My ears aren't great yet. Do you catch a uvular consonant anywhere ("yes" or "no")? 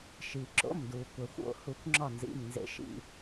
no